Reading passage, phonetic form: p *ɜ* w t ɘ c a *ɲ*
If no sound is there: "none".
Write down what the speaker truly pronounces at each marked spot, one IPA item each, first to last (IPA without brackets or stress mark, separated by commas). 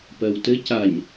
ɜ, ɲ